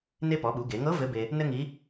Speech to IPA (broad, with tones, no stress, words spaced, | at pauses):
ne˧pɔ˩˧ɓu˩˧ ɡe˩˧ŋɤ˧˥ vɘ˧˥be˧ | nɘ˥ŋi˧˥